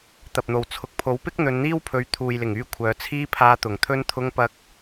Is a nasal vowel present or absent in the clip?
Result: absent